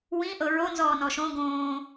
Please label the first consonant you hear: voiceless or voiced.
voiced